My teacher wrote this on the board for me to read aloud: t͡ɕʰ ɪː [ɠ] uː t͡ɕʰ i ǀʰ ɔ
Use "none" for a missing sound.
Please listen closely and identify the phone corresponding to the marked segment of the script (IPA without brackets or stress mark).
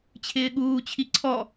ɠ